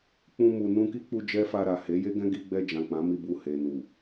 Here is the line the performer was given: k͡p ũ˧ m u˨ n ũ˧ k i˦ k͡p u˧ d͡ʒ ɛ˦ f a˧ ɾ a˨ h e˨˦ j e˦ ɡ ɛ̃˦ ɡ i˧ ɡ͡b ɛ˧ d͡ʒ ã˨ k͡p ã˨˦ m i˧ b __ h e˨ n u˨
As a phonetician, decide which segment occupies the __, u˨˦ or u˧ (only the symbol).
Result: u˧